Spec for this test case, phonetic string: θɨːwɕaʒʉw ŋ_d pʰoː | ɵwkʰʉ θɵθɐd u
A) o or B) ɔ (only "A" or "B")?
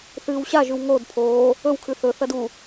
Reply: A